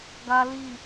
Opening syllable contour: high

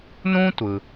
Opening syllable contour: high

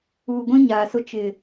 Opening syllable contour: low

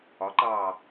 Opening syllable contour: rising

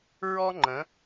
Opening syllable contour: high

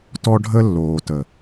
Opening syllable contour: high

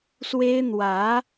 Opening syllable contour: high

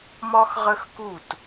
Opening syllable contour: high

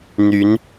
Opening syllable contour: rising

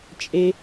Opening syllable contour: low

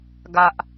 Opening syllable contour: low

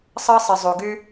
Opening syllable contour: high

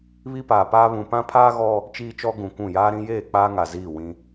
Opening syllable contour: high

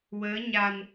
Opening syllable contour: rising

